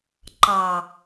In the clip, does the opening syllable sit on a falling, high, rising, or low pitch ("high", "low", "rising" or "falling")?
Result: low